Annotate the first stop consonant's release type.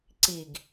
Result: click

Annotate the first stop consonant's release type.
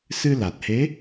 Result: plain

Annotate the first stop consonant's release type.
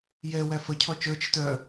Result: aspirated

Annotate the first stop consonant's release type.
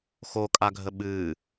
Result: ejective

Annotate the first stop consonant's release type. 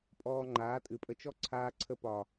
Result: ejective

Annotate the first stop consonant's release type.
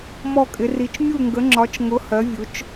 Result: ejective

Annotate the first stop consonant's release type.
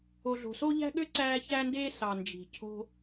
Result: implosive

